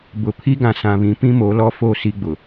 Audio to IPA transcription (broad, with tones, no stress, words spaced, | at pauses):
bʊ˨ pʰi˦ɡã˨sã˨βĩ˨˦ pĩ˦mo˨˦lɔ˦fo˦˨ si˦ɡ͡bʊ˨